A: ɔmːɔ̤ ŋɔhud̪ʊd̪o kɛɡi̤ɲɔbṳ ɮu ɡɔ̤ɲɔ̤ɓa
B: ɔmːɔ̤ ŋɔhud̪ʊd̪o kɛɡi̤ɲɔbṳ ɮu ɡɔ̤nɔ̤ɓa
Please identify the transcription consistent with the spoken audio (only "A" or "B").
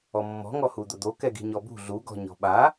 A